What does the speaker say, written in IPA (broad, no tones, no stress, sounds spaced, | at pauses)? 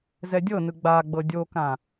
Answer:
z ɛ dʲ ɤ n ɯ ɡ͡b a ɡ͡b ɤ dʲ o k ã